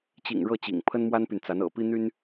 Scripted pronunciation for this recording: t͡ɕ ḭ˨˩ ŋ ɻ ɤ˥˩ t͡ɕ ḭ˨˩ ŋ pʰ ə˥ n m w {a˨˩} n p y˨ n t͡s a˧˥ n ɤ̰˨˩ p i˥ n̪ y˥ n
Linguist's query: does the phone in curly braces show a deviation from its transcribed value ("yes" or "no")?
yes